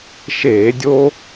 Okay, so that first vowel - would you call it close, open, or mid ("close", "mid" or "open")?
mid